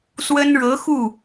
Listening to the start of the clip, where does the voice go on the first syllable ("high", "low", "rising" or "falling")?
high